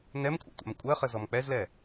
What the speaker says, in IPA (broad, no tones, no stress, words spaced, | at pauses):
nɛmkʷʰa̰tʷa̰m kʷʼɜχə zɔmk͡pɛzlɛ